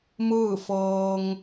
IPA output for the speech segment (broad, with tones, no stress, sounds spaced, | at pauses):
m ɯː˥˨ f ɤː˧ ŋ